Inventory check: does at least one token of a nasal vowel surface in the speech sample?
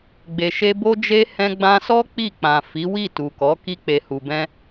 yes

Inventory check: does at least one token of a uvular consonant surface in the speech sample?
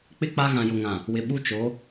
no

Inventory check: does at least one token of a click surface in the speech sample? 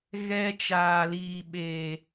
no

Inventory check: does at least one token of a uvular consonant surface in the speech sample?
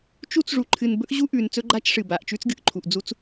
no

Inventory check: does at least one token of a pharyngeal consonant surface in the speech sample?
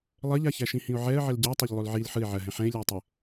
yes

